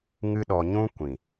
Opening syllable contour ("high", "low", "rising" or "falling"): high